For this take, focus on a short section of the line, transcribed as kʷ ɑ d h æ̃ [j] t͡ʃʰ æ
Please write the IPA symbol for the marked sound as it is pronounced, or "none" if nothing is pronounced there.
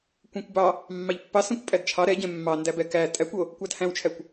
w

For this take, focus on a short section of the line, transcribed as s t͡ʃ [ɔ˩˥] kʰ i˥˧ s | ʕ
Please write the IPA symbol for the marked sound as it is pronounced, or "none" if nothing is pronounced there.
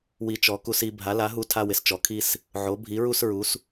ɔ˩˥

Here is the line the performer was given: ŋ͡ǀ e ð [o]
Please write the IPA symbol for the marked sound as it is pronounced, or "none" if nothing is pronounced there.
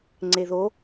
o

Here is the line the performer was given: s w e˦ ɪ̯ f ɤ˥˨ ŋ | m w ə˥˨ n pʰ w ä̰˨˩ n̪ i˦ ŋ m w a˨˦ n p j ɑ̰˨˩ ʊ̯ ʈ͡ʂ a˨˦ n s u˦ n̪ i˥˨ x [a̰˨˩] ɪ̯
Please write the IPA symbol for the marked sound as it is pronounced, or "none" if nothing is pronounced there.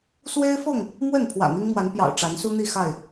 a˥˨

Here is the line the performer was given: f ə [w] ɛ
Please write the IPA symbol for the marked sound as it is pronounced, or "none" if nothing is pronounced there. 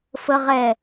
ʁ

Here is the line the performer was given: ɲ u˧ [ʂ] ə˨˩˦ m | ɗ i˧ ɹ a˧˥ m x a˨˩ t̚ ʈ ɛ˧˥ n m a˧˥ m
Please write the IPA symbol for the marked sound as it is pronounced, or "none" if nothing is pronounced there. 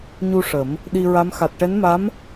ʂ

